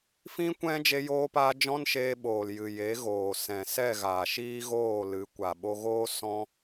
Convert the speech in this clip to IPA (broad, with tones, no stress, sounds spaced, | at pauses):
f ĩ˦ kʷ ɛ̃˦ d͡ʒ e˧ j oː˧ p aː˧ d͡ʒ ɔ̃˦ n ʃ eː˧ ɓ oː˨ l j ɨ˨ j e˨˦ ɣ oː˨ s ɛ̃˨ s ɛ˦˨ ɣ aː˨ ʃ iː˦ ɣ oː˦˨ l ɨ˨˦ kʷ a˨ ɓ o˧ ɣ oː˦ s ɔ̃˦